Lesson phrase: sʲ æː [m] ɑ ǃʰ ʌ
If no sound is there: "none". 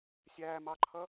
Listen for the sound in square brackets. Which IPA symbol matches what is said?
m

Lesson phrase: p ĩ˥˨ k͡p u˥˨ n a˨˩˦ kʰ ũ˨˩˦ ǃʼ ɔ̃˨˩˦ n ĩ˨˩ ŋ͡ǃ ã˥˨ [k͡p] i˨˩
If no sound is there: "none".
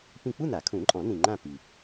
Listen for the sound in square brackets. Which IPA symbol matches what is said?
p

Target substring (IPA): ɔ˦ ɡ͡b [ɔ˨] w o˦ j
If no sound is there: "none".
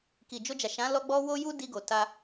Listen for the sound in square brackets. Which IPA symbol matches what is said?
ɔ˦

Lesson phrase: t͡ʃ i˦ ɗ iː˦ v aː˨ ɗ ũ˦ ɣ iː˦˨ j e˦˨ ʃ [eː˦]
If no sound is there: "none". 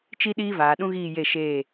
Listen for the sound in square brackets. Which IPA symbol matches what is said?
eː˦˨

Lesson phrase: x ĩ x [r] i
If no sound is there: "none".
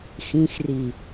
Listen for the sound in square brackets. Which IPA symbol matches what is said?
r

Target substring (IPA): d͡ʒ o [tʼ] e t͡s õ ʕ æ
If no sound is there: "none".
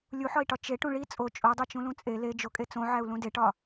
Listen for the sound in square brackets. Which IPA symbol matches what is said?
kʼ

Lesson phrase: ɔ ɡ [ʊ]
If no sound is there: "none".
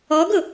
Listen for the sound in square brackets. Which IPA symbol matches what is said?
ʊ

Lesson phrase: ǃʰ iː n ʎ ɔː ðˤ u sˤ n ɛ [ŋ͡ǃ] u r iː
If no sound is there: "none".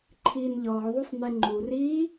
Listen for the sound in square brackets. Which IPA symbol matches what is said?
ŋ͡ǃ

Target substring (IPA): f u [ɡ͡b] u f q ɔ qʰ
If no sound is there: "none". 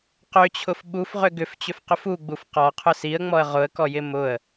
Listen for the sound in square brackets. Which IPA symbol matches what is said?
ɡ͡b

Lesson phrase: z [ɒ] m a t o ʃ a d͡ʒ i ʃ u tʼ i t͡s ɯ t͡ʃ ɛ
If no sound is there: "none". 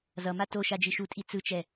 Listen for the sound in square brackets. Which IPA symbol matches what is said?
ʌ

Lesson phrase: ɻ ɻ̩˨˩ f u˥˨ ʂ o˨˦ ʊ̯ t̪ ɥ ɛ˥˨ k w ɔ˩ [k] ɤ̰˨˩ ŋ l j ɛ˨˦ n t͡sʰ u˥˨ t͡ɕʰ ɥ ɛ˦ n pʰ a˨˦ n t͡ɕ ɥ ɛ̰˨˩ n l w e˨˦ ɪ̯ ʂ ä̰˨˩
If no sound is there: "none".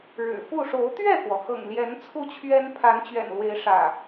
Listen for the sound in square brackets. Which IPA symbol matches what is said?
x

